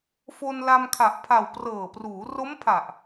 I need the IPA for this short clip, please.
fo˧nla˧mkʰa˨˩ʔ pʰa˨˩w prɤː˨˩pruː˩˦ ro˦˥mpʰa˨˩ʔ

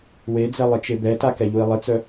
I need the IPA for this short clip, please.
wed͡zɛ lˠɪt͡ʃebɛta kɛʎui̯lˠɪt͡sœ

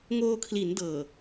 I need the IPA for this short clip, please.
ŋoː˧kʰli˩˦ndɤː˨˩

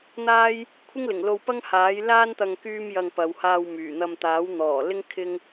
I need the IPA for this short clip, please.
n̪aː˥j | kʷʰɪ˥ŋlɪ˨˩ŋlo˧wpɐ˥ŋ haː˨˥jlaː˥nt̪ɐ˧ŋ kyː˥mjɐ˧ŋpɐ˨˧w haː˧wmyː˨˩n̪ɐ˧m t̪aː˨˥wn̪ɔː˨˩lɪ˥ŋ kʰɪ˥ŋ

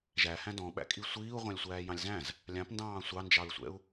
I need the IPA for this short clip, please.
ʒæhæ̃ dɔ̃ɓæ̰kʼi sʷiːu̯ʁʷɑ̃lʲsʷæː jɑ̃lʲzæ̃z | lʲɑ̃pndɑ̃ː sʷɑnd͡ʒɑɹsʷɛ̰u̯

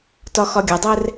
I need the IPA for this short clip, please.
tɒxɒɡʲɐdˤɛr

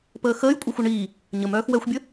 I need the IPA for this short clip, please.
pəːxəːj kʷʼaxʷœɳiː | ɲəm œːxwɛxʷbʲə

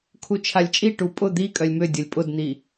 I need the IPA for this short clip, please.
kʰut͡ʃʰalʲt͡ʃʼiʈu pʼʊ d̪i kʼœlʲmø dʲʊlʲpʼʊdn̪i

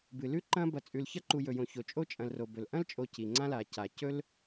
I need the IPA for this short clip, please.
bɨ˩lʉ˥ǃɐ̃˦ bɐ˨t͡sʼʉ˨lçɐ˥ ǃu˨jɵ˩ jõ˨ço˩t͡ʃʼo˥ t͡ʃʼɐ̃˨lro˩bɵ˩l ʔɐ̃˥lt͡ʃʼo˨ ci˩ ŋ͡ǀã˥la˩ca˩ cɵ˥l

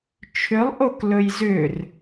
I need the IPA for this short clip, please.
t͡ʃʰʏlˠʔok lɵjzʏr

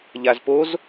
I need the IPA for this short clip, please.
ʎazpoz

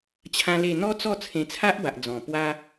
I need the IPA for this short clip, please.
t͡ɕʰã˦le˥˧ n̪ɔ˦t͡sɔ˥˧ t͡sʰẽ˧t͡sʰa˦ʔba˨ʔ d͡zɔ̃˨˩pwa˦

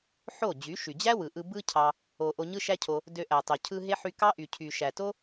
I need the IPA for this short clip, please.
ħo˦˨d͡ʑy˨˦ ʃy˨d͡ʑæ˦ wɯ˨ʔɯ˧ bɯ˦ cʰɑ˧ | o˨ ʔo˧ɲɯ˦ʃæ˦cʰo˧ | dø˧ʔæ˨tˤo˨ cʰɯ˧ ɦe˦ħy˧ kɑ˦ʔy˨ cʰy˨ ʃæ˨to˦

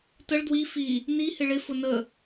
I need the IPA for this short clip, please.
təɭ dwi fi | nihɪ ɭɪfʊ nə

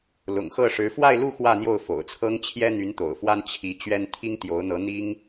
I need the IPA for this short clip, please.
lʊ̰˨˩ŋxɤ˥˩ʂɻ̩˧˥ fwa˥˧ɪ̯lu˥˧ xwä˥˧n̪jo˥˩ʊ̯ fo̰˨˩ʊ̯t͡sʰɤ˥ŋ t͡ɕʰjɛ˥n̪y˧˥nt̪o̰˨˩ʊ̯fwa˥n t͡ɕʰi˧˥ t͡ɕɥɛ˥n t̪ʰi˥ŋ t̪jo˧˥ʊ̯n̪ɤ˧˥ n̪i˥ŋ

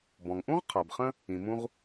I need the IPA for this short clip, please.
bɔ̃˩ŋʔũ˥ʁ qʰa˩bχə̃˥ | ĩ˩mũ˥ʁ

